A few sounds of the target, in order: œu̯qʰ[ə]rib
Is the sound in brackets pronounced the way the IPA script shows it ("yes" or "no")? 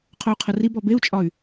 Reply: yes